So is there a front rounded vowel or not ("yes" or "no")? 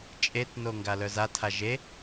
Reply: yes